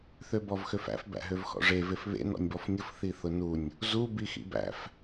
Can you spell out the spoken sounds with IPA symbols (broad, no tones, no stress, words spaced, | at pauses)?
θøbɔvxøfæ̰f bæ̰ɦøvxɔ̰ʐe vefβḛ nɔ̰nʲbɔfnʲʊf θiθʊnunʲ | zu bixḭbæ̰f